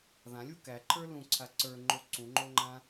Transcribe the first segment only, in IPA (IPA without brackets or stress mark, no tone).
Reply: ð